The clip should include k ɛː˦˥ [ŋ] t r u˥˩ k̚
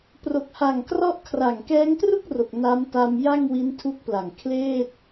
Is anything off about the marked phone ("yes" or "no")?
no